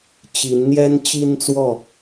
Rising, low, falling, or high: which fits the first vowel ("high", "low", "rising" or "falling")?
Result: rising